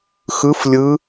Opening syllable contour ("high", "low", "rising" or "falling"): rising